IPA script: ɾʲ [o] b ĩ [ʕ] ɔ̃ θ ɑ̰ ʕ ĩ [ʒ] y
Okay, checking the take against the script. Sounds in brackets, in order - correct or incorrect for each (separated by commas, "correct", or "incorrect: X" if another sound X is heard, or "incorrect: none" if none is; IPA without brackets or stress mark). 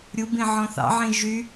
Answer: incorrect: u, correct, correct